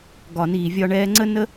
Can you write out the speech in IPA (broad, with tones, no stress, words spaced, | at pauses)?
ɡɒ˨niː˨ vʲɒ˧ɳɛː˧ŋ͡ǀə˦ nə˦